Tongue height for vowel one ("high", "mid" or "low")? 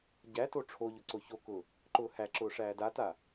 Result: low